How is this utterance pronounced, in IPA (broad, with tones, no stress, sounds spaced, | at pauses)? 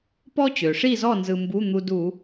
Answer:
p ɔ˥ t͡ɕ ø˩ ʂ i˥˧ z ɔ˥˧ n z ɯ˧ m b u˧˥˧ n̪ u˧ d u˧˩˧